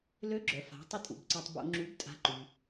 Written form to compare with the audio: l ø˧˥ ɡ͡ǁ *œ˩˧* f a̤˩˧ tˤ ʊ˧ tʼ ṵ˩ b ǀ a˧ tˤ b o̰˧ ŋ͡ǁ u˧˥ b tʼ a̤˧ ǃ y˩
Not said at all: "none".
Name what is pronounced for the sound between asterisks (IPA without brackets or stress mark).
œ˩˧